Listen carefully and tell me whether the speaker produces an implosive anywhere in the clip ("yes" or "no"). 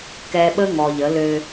yes